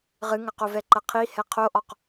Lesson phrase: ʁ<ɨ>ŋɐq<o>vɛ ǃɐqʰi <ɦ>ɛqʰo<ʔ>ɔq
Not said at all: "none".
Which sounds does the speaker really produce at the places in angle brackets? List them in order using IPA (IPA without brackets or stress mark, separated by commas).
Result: ɨ, o, h, ʔ